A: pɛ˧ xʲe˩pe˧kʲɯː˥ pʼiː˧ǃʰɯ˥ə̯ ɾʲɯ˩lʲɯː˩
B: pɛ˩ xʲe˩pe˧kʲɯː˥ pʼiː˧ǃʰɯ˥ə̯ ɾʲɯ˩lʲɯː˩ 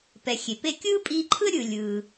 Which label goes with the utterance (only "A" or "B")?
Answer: B